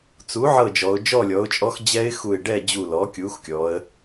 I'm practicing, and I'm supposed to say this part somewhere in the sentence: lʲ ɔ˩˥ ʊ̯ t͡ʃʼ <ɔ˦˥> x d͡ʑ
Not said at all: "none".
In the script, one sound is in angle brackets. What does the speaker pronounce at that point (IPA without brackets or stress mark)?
ɔ˦˥